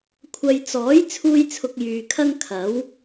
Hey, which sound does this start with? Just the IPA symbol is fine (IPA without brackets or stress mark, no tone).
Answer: kʷʰ